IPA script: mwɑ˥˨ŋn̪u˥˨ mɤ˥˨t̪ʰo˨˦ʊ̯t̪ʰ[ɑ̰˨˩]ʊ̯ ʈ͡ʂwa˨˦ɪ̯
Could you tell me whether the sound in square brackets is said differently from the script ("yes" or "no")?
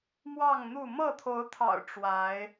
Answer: no